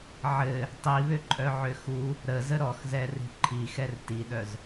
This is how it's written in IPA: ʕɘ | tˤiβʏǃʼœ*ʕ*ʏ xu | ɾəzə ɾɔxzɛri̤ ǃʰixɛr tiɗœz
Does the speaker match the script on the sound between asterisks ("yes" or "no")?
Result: yes